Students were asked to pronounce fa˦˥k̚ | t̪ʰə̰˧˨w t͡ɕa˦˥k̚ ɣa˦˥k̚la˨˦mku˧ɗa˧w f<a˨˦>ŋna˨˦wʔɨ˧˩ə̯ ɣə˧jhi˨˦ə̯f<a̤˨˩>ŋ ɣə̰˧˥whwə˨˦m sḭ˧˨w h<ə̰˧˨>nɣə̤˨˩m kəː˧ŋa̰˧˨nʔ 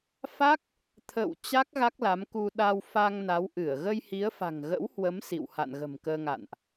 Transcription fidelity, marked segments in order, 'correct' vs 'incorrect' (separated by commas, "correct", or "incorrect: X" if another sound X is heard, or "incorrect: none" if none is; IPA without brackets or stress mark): incorrect: a˧, correct, incorrect: a̰˧˨